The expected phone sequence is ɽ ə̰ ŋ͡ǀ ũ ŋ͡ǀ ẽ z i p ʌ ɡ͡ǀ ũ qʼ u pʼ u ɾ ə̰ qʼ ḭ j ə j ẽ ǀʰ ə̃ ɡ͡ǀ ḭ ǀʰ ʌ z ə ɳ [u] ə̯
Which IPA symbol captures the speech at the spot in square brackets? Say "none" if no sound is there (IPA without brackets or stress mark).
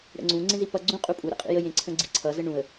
ũ